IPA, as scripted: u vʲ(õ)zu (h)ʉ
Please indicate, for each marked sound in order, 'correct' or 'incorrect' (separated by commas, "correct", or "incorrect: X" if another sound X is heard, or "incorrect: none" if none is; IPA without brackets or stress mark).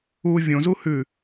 correct, correct